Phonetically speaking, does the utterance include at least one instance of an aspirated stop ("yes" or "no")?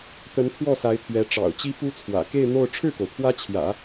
yes